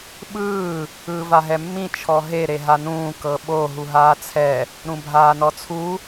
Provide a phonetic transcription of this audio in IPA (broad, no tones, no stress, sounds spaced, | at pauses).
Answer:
ɓ ɯː | ɯː v a ɦ ɛ mː ĩ t͡ʃʰ ɔ ɦ e ɾ e ɦ a n ũː k ɤ ɓ o ɦ u ɦ aː t͡sʰ ɛ | ɾ ũ bʱ aː n ɔ t͡sʰ u